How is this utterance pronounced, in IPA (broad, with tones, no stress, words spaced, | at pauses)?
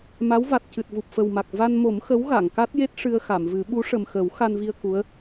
ma˧˥w va˨˩t̚ cɨ˨˩t̚vu˨˩p̚fə˨˩wma˨˩k̚ va˧nmo˨˩˦m xə˧˥wɣa˨˩˨ŋka˦˥t̚je˦˥t̚ ʂɨ˧ə̯xa˨˩˨mvɨ˨˩˦ ɓu˧˥ʂə˨˩mxə˨˩˦w xa˧nvi˧ə̯ ku˧˥ə̯